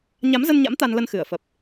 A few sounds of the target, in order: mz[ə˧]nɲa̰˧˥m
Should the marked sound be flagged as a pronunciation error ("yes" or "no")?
no